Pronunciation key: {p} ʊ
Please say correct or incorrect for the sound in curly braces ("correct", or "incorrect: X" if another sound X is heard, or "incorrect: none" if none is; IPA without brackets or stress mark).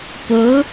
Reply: correct